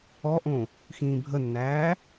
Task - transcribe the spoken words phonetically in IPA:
ɔ ʔ õ | x ĩː bʱ ə nː æː

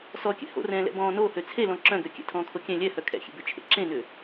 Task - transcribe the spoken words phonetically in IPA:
s ɔ kʲ ɛ̰ h o̰ r ɛ̃ː l ɛ̰ b ɔ̃ː n o h ø t͡sʰ e l ɔ̃ ǁ œ̃ ɡ ø kʲ ɛ̰ tʰ ɔ̃ː kʰ o kʲ ɛ̃ lʲ ɛ h œ kʰ ɛ̰ xʲ ḛ b ø t͡ʃʰ ḛ ǁ ẽ n ʏː

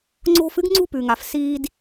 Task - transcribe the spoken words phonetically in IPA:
ŋ͡ǀ o̤˧ f ɨ˦ ɡ ŋ͡ǀ ṳ˦ p ʉ˨ ŋ a˨ f s iː˧ d

